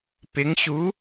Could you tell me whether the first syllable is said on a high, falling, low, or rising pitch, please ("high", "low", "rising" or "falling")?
rising